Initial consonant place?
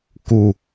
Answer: velar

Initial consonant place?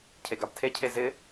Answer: palatal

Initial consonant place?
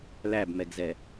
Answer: alveolar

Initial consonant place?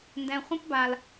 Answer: alveolar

